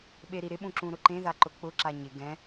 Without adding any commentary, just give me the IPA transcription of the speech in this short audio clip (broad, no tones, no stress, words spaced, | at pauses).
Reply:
ɓeɾiɾɪɓũ ǁũɾʊǃẽða ǃʊk͡pʊǁa ɲɪ ɡɛ̃